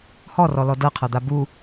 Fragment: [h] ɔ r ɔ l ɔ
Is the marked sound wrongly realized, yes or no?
no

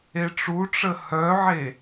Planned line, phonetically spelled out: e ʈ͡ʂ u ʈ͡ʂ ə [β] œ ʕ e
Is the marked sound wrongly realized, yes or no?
yes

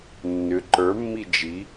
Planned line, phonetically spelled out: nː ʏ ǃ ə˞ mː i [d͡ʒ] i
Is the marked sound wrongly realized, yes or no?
no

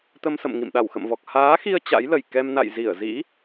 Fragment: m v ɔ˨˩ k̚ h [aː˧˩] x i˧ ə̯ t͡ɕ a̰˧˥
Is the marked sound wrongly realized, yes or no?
yes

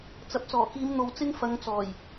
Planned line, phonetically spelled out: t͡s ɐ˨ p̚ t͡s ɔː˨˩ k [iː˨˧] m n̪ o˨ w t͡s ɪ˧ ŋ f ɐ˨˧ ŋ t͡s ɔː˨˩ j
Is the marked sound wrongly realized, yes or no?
no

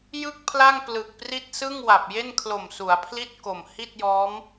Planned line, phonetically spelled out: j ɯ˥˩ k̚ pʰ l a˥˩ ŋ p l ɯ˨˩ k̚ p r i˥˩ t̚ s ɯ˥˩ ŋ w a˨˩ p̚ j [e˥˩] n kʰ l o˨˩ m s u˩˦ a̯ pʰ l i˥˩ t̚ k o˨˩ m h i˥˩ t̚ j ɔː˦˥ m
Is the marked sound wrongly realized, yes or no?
no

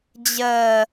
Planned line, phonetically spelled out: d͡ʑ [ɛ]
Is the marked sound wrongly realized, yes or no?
yes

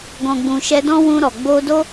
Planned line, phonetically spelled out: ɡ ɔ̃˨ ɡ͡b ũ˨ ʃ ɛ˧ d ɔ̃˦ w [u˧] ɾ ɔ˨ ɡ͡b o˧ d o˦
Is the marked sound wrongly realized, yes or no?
yes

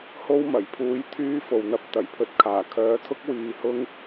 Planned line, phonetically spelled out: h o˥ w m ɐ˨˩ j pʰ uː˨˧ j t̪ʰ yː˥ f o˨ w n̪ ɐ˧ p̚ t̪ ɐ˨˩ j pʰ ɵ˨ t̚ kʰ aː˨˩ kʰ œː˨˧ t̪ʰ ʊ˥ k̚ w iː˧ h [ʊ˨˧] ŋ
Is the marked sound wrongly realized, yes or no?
yes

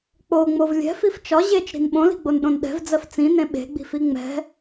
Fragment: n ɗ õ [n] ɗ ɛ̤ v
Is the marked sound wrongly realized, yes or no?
no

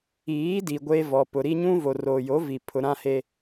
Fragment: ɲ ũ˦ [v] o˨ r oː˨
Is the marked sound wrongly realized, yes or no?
no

